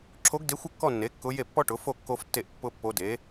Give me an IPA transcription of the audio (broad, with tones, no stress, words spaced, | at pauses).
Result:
ǁʰo˧˥ɡde˧˥xʷɪ˥˧ kːɔ˥˧nːe˩˥ kːʊ˧˥ je˥˩pːɔ˥ ʈʊ˩˥fo˥˧ kːo˥ftːe˥˧ʔpːʊ˥pːo˧˥ de˩˥